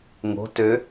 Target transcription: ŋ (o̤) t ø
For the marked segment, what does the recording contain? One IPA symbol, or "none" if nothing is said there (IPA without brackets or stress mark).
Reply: o̤